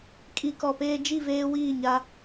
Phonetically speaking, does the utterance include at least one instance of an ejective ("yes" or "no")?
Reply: yes